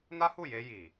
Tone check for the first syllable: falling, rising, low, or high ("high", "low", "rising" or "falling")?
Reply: high